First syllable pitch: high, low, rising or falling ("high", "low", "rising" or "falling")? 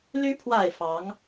rising